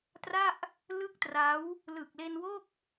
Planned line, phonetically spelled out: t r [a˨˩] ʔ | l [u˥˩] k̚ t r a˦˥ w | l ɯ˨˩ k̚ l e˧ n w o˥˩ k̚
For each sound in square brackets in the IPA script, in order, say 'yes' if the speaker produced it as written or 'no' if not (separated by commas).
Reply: no, no